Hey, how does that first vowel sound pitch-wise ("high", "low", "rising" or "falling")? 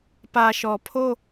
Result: low